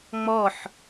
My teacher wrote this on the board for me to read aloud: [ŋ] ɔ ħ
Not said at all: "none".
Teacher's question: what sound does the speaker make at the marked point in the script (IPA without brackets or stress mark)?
ŋ͡m